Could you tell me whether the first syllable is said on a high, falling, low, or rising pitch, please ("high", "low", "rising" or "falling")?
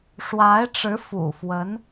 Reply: rising